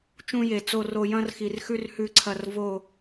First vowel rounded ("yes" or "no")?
yes